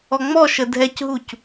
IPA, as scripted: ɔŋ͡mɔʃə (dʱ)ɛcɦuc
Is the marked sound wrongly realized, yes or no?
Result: no